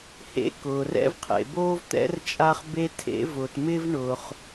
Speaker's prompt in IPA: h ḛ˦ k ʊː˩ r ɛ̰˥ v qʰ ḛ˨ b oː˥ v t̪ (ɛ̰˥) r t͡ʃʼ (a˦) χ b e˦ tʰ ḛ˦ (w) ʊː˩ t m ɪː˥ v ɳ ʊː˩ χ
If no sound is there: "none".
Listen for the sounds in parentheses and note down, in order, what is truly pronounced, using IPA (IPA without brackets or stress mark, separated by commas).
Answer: ɛ̰˥, a˦, v